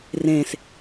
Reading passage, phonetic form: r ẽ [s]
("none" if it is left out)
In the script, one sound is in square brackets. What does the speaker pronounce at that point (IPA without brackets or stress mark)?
s